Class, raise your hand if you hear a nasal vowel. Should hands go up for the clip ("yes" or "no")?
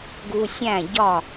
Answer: yes